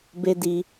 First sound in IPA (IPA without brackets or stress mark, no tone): b